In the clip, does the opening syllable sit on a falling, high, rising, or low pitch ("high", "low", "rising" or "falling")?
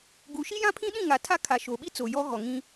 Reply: rising